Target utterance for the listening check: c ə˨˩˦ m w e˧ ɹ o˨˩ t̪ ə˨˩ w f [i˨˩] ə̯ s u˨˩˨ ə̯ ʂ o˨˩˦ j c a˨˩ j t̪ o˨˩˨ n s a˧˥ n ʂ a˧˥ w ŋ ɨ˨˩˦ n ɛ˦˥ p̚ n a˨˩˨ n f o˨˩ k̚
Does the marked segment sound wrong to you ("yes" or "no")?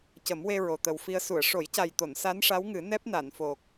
yes